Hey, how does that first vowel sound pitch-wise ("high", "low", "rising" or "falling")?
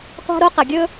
high